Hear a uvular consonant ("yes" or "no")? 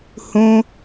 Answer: no